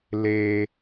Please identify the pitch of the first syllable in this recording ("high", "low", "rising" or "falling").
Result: high